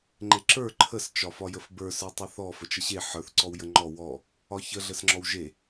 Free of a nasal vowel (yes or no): yes